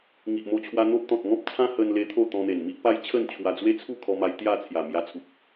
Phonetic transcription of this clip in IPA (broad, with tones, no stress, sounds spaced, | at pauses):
ŋ i˨ ʔ m o˧ t͡ɕʰ w a˧ n̪ o˦ p̚ t̪ ɔ̃˨ t̚ ŋ ɔ̃˦ p̚ t͡sʰ ã˦ h ə˧ n l e˧ t̪ʰ o˥˧ t̪ ɔ̃˧ n̪ e˨˩ n m i˦ ʔ p a˦ j t͡ɕʰ ə˥˧ n t͡ɕʰ w a˧ d͡z w e˦ t͡sʰ u˥˧ kʰ ɔ˧ m a˧ j t̪ j a˥˧ t͡sʰ j a˨˩ m j a˧ t͡sʰ u˨ p̚